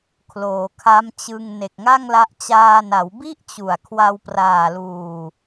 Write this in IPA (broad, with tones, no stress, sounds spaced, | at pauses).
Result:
kʰ l oː˩˦ kʰ a˦˥ m t͡ɕ ɯ˧ ŋ n e˨˩ k̚ ŋ a˥˩ ŋ l a˦˥ ʔ t͡ɕ aː˧ n a˩˦ w b i˥˩ ʔ t͡ɕ u˨˩ a̯ kʰ w a˧ w p r aː˨˩ l uː˨˩